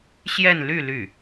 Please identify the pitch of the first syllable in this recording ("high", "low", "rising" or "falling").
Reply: falling